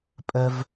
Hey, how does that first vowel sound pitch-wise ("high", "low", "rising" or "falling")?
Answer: high